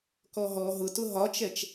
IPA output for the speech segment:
kɔɦɔ ɦʊtʊ ɦɒt͡ʃɛt͡ʃ

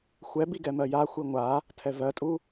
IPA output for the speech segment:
xʷɛbiɡɛ mɜja xʷiŋʷa | tʰɛvɜtʼu

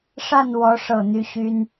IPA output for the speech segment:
ʂa˥˨nwɔ˨˦ ʂɤ˥˨n̪y˦ ɕy˦n

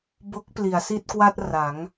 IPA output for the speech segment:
bo˦˥k̚pli˩˦a̯ si˥˩t̚kwa˥˩t̚ra˩˦ŋ

